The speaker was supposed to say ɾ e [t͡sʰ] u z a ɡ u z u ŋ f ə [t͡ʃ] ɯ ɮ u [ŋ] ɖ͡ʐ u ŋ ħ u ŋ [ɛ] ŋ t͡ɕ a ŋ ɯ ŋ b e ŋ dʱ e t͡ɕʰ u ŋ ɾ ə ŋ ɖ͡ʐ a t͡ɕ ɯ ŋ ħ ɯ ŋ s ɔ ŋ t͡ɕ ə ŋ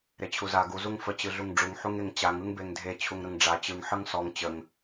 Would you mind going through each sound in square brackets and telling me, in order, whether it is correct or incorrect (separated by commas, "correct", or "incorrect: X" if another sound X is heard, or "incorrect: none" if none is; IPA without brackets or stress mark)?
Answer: incorrect: t͡ɕʰ, incorrect: t͡ɕ, correct, incorrect: e